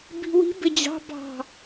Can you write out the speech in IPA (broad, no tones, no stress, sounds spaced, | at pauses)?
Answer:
b i̤ w i̤ b ɪ d͡ʑ ɑ̤ b ɑ̤